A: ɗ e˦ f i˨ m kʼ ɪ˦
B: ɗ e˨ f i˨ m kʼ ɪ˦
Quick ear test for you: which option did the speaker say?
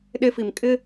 A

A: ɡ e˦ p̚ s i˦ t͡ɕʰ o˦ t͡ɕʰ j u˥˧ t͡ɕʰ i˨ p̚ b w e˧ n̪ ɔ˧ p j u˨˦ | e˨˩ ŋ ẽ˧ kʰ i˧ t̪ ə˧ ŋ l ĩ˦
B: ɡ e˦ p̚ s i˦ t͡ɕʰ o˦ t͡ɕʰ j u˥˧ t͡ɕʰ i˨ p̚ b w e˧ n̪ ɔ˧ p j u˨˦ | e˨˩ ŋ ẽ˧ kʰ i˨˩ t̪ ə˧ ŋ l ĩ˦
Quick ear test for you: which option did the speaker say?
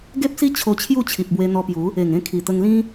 B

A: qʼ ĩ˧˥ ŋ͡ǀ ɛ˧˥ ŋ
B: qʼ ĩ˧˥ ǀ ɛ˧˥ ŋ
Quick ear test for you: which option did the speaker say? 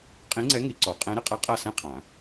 A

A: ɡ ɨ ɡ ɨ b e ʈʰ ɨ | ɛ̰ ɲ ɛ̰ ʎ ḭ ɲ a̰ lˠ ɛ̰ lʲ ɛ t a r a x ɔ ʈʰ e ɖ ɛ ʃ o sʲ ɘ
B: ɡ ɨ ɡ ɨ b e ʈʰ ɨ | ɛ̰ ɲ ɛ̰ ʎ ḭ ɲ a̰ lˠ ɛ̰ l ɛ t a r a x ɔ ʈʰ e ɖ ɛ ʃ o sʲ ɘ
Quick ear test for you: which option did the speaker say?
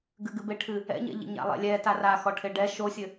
A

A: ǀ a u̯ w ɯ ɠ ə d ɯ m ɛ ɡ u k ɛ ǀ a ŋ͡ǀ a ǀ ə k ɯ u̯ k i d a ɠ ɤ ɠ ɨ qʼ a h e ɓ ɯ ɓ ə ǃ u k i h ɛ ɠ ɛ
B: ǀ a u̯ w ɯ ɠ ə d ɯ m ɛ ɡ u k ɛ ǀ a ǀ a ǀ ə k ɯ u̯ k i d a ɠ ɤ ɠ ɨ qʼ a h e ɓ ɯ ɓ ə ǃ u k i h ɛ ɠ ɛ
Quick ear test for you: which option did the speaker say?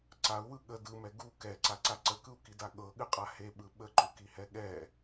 B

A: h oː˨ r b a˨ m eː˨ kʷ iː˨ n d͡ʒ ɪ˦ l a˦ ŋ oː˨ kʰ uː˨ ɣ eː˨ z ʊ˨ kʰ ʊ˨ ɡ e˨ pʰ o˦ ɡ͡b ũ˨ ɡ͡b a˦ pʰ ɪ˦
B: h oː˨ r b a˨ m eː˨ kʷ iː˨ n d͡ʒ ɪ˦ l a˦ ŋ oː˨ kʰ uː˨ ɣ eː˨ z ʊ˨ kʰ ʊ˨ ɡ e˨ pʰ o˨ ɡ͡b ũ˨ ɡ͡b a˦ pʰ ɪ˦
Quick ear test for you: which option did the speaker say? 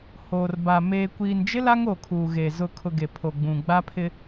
B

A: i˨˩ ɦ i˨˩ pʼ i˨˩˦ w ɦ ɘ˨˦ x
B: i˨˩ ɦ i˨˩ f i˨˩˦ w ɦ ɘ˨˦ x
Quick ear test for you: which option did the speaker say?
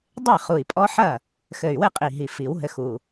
B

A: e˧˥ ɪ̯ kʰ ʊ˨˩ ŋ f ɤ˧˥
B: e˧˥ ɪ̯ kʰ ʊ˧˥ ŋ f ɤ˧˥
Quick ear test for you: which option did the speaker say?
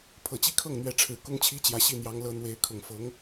A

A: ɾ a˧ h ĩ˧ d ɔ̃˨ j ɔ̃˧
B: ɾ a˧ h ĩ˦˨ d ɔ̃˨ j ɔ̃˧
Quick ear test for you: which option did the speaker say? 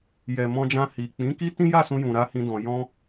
A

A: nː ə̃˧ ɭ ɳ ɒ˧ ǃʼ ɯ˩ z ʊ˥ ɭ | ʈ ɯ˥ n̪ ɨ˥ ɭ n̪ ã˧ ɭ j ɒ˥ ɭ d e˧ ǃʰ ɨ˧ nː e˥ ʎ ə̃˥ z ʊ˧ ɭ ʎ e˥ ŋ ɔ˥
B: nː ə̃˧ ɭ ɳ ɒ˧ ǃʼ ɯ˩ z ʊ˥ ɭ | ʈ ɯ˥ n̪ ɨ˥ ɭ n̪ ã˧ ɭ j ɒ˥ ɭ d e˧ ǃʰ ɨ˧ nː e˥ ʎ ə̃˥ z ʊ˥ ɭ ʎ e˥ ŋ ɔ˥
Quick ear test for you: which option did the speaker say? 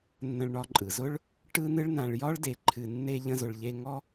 A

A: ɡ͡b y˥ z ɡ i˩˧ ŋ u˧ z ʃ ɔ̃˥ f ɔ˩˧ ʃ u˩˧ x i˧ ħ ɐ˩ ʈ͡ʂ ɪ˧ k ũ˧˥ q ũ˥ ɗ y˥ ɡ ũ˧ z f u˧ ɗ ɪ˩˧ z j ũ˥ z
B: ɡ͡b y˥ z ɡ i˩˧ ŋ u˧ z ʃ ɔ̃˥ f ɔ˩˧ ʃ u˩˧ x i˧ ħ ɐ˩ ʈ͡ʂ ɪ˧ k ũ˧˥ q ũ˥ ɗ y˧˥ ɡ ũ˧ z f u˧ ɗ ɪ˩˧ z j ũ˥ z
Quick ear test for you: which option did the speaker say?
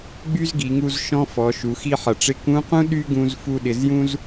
A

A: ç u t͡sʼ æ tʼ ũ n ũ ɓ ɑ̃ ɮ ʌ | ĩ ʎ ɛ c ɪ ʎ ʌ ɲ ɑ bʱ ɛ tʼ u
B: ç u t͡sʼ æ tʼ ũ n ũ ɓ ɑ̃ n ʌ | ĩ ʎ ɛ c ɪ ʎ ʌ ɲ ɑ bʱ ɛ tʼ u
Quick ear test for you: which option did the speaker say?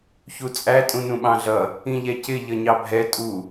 A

